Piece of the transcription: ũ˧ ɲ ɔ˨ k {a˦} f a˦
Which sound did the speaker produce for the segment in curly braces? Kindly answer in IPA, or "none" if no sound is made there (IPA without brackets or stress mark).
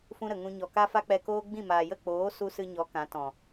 a˦